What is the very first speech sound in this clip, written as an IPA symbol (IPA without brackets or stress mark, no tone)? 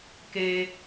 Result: k